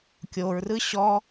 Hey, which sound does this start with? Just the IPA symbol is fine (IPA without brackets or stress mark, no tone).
kʲ